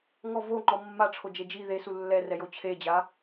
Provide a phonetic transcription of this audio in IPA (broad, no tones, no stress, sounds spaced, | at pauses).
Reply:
ŋ ɔ v o ŋ͡ǃ ɔ mː a ʈ͡ʂʰ o d͡ʒ e d͡ʒ i ð e s u lː ɛ r ɛ j o t͡ɕʰ e d͡ʑ a